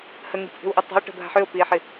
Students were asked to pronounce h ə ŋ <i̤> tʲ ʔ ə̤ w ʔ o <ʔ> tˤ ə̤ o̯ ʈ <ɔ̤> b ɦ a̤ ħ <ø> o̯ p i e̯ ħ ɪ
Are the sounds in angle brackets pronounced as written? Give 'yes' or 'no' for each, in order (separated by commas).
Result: yes, no, no, yes